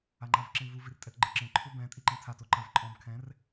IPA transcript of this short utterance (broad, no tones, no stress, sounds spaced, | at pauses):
a ŋ͡ǃ a v ǁ ẽ v u v i r tʼ ɛ t ɡ͡ǃ ɯ ǁ ẽ ǃʰ u b ɛ̃ tʼ i ǃ ẽ tʰ a t o ǃ a v ǃʼ ɔ̃ b kʰ ɛ̃ r